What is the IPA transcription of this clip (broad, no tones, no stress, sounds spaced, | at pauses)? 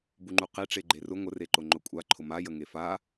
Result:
b u ŋ͡ǃ u q e ʈ͡ʂ e ɡ͡ǃ e r ʊ ŋʷ ə r e ǃ ʊ ŋ͡ǃ ʊ kʷʼ a ǃʰ ʊ m a j ə ŋ e f a